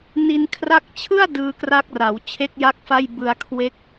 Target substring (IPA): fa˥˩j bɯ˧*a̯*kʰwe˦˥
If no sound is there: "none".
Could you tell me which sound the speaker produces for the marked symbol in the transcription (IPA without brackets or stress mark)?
a̯